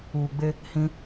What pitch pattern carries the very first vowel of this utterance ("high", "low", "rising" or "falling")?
low